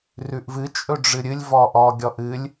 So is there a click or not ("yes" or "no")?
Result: no